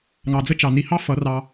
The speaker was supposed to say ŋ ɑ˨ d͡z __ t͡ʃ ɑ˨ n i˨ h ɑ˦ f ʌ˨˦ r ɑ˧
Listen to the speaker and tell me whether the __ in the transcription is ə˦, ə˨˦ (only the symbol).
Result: ə˦